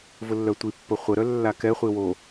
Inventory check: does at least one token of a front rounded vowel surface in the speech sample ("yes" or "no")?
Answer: yes